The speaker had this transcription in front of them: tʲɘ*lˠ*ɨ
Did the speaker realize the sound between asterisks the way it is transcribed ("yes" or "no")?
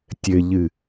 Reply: no